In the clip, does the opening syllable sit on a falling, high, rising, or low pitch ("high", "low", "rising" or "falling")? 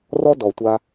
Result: high